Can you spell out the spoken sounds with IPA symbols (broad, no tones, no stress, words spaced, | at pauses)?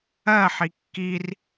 ɜ ħikːir